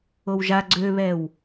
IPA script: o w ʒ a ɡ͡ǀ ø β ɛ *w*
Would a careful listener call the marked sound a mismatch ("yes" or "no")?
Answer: no